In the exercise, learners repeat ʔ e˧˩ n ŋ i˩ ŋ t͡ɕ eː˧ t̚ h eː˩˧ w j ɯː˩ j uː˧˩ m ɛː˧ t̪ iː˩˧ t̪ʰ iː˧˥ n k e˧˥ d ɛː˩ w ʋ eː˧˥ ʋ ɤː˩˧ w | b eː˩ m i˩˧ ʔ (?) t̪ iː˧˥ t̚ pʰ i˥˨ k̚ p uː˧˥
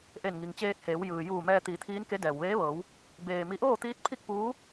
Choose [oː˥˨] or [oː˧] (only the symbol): oː˥˨